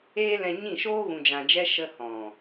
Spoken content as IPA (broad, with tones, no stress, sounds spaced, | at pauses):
eː˦ l ɛ̃˧ ɲ ĩ˦˨ ʃ oː˦ ɣ ũ˧ d͡ʒ ã˧ d͡ʒ ɛ˦ ʃ ə˧ h ɔ̃˨